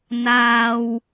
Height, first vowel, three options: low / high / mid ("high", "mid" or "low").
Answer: low